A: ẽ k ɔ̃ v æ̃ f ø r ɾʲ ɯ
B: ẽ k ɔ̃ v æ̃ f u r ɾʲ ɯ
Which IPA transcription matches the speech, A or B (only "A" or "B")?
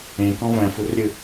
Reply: B